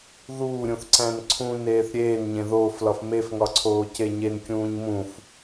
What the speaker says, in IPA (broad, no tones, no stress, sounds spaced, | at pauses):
ð uː ɾʲ ũ θ ǀ æ̃ n ǀʰ ũ n eː θ ɾʲ eː n ɲ ẽ ð oː f l ɒ f m e f ŋ ɒ ǀʰ oː c e ɲ e n kʲ ũː ɲ m ũ f